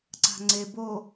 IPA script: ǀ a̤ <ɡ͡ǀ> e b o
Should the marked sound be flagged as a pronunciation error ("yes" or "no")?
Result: yes